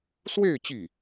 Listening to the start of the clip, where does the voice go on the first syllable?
falling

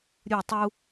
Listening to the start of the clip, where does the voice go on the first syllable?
falling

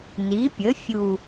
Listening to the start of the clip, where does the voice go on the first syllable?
rising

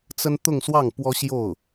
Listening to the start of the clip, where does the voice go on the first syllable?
high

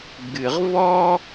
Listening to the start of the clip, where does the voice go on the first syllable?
low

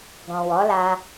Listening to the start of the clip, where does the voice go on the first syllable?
low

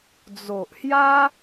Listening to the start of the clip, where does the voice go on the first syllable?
low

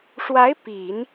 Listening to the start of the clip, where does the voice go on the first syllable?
rising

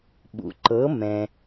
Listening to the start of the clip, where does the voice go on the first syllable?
low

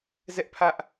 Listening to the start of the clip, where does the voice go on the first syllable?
high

